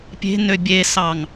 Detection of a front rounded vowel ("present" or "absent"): present